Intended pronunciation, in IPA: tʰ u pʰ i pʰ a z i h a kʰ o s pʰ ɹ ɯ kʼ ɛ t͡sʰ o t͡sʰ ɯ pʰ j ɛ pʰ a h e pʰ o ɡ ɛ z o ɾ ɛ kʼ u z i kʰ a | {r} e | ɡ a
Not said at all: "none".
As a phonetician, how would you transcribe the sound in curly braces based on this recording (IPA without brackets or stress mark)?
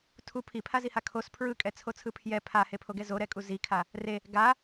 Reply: r